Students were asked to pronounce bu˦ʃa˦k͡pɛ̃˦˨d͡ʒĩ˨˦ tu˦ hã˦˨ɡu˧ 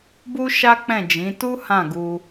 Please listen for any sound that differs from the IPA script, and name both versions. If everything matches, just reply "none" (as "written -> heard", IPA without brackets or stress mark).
none